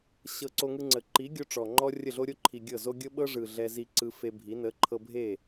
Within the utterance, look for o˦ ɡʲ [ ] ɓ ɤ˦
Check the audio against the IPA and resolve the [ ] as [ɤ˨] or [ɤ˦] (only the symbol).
ɤ˦